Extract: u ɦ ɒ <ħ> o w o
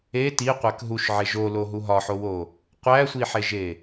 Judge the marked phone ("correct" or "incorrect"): correct